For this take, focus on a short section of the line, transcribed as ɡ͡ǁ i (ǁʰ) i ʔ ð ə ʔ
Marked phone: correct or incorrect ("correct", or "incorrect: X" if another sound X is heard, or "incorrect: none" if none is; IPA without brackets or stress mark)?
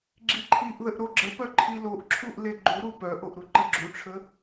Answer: incorrect: ǃʰ